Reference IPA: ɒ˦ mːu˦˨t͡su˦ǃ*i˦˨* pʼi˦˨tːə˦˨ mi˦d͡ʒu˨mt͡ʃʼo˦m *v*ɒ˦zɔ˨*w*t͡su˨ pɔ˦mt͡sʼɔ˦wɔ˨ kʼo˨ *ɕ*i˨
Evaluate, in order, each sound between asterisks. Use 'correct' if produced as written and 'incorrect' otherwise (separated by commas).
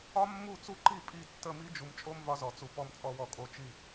correct, correct, incorrect, incorrect